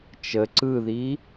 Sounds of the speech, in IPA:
t͡ʃ ə ǀ ɯ ð i

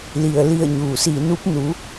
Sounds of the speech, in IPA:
l i˩ ə̯ l i˧˩ ə̯ ɲ uː˩ s iː˧˩ n u˧˥ p̚ n u˩˧

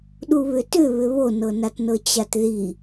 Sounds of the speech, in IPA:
ɗ u β ʏ t ʏ β ʏ β o n ɤ n a t n ɤ t͡ɕ a t ð i

